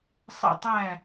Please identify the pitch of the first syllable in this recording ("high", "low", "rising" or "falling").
falling